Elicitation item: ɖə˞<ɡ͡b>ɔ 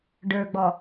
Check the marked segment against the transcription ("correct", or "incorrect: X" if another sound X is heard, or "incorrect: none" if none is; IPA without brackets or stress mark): correct